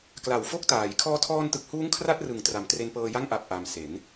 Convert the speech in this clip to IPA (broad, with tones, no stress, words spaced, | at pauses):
kla˨˩wfo˥˩k̚taː˩˦j kʰɔː˧tʰɔː˧ntɯ˨˩k̚huː˦˥ŋ kʰra˥˩t̚rɯ˨˩ŋ tra˨˩mtre˧npɤː˧ja˥˩ŋ ʔa˨˩p̚ʔa˩˦m se˩˦n